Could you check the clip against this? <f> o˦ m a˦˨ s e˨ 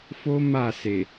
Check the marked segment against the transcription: correct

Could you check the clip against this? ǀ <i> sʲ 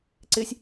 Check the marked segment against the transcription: incorrect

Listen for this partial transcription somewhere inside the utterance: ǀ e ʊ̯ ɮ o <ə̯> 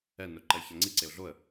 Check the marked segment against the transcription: correct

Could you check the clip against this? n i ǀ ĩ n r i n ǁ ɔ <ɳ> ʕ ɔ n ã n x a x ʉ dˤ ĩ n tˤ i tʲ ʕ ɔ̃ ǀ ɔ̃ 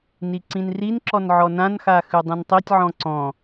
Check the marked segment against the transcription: incorrect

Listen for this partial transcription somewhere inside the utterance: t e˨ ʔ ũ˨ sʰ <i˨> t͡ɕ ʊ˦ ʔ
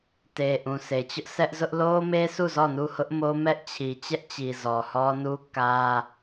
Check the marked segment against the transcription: incorrect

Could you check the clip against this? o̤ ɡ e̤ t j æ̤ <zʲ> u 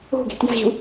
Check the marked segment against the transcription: incorrect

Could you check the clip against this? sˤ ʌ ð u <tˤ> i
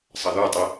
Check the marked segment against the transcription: correct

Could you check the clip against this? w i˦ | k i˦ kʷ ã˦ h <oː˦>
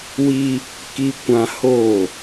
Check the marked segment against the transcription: incorrect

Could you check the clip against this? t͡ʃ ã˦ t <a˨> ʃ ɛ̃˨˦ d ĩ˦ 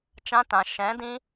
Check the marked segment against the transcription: incorrect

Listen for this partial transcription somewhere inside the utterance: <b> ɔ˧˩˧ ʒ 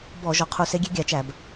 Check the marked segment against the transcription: correct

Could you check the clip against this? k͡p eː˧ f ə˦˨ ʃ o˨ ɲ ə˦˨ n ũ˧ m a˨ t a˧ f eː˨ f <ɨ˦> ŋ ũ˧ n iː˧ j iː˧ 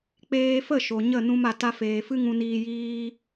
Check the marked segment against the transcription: correct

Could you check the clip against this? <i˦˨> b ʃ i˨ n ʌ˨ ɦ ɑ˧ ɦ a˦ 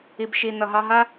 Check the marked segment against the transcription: incorrect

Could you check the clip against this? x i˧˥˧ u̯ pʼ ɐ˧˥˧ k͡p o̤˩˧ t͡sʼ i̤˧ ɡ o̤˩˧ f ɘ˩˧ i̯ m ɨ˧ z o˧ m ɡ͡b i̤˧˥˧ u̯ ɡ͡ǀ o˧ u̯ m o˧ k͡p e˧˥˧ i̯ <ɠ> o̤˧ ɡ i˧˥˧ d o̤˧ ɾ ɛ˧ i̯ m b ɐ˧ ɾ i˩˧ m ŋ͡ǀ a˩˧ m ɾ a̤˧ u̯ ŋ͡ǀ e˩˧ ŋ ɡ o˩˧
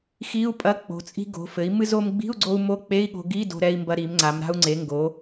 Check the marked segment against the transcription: correct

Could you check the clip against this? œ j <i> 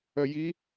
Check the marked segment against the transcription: correct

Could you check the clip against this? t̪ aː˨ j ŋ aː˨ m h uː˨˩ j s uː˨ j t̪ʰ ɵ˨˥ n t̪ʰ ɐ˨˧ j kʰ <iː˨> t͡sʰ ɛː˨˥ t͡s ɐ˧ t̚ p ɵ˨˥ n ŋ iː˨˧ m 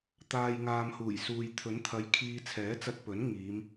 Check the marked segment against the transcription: incorrect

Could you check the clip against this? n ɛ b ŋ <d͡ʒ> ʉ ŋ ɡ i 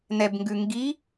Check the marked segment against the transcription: incorrect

